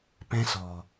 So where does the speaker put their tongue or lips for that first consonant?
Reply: lips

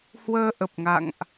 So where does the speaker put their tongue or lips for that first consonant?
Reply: throat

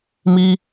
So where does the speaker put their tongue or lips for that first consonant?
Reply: lips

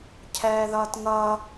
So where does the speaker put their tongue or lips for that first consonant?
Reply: palate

